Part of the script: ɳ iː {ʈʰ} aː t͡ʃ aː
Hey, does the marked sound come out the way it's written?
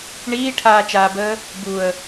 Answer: yes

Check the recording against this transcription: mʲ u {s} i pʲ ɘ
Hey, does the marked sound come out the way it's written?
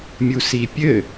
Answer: yes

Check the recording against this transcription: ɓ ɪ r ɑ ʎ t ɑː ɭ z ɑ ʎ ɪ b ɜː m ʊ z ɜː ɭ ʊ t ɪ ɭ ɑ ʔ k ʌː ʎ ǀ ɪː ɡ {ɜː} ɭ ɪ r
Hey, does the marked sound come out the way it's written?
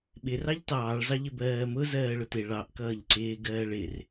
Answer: yes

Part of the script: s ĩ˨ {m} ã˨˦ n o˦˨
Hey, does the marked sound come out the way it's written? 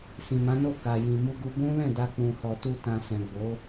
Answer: yes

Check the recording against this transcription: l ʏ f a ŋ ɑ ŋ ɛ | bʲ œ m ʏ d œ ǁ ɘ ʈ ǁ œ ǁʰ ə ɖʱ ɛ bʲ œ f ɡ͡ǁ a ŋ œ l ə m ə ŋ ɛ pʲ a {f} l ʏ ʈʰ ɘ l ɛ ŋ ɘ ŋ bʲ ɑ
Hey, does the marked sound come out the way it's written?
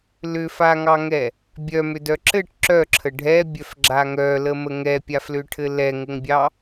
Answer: yes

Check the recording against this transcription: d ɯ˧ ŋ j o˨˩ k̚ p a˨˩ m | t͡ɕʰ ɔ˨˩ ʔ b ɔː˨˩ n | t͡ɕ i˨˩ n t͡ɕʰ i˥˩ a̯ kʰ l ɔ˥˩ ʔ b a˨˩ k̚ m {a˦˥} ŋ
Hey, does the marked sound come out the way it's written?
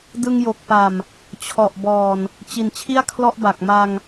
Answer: no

